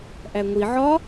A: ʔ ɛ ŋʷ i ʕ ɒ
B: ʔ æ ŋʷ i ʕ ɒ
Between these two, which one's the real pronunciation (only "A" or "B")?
B